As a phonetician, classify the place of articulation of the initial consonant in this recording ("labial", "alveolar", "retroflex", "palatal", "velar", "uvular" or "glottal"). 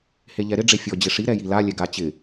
glottal